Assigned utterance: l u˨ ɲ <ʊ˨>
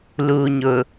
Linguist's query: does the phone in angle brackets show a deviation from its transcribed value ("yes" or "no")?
no